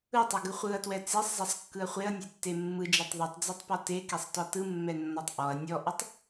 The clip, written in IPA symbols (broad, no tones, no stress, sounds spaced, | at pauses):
ɯ tˤ e ɡ ɯ χʷ ɯ ɐ̯ t w ɛ t͡s e sˤ zˤ ɛ sˤ kː ɯ ɐ̯ χʷ e ɐ̯ nʲ e tː e mː ɯ d͡ʒ ɛ tˤ ðˤ ɯ tˤ d͡z e tˤ p ɔ t e k e sˤ t ɔ t ɯ mː ɛ nː ɔ tˤ ʔ ɔ ɐ̯ nʲ ɔ ʔ ɯ tˤ